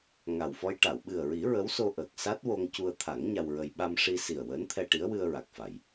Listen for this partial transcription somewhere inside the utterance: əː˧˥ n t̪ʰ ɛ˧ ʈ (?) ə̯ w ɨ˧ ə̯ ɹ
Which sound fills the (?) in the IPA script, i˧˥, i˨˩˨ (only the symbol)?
i˧˥